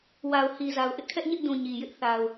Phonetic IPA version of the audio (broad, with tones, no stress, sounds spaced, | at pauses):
w a˨ ʊ̯ h i˨ z a˨ ʊ̯ ʔ ɪ˦ ʔ kʰ ɛ˦ ʔ ɲ ɪ˦ ʔ d ũ˨ ɲ i˨ j ɪ˦ ʔ θ a˨ ʊ̯